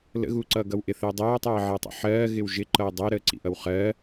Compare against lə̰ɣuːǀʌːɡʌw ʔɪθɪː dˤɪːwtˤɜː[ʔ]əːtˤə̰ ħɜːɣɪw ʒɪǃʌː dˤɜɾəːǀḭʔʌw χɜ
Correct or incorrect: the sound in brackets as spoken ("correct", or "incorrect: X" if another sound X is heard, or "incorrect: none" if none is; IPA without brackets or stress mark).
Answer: incorrect: ʕ